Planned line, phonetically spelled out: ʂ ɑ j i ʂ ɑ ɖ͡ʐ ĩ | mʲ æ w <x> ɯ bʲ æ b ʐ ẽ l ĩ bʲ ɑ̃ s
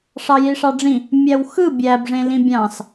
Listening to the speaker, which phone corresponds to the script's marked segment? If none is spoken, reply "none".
x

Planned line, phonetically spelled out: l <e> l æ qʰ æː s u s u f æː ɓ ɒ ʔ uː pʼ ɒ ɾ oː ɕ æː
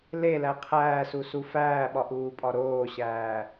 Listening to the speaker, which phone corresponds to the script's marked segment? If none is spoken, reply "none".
e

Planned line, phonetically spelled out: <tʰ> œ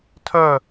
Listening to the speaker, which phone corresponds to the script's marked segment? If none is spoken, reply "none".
tʰ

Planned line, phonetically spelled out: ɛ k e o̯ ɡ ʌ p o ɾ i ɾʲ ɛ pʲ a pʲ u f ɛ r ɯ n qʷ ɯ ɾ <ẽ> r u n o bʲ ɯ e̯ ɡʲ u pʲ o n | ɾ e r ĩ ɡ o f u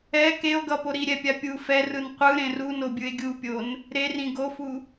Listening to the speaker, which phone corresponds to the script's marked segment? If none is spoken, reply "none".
ẽ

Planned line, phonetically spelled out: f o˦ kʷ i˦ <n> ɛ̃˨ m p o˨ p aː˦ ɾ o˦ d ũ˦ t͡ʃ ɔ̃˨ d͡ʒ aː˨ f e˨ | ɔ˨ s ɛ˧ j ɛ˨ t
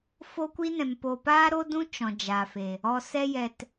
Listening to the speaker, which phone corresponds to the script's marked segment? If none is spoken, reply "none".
n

